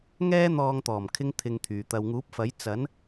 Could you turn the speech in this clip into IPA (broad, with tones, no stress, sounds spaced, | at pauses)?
ŋ ɛː˥ n̪ ɔː˧ ŋ t̪ ɔː˨˩ m kʰ ɪ˧ ŋ t̪ʰ ɪ˧ ŋ t̪ʰ yː˨ t̪ ɐ˨ w ŋ uː˨˥ p̚ f ɐ˨˥ j t͡s ɐ˨˥ n